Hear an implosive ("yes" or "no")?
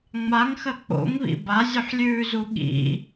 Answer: yes